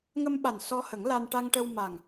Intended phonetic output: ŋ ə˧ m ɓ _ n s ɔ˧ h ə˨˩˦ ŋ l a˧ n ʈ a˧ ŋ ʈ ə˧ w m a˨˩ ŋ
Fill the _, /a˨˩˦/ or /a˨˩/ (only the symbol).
a˨˩